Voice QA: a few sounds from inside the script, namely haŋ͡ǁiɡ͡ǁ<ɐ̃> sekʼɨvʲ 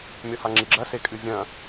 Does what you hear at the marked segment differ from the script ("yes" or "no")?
yes